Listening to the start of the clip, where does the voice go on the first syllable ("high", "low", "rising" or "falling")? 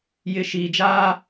low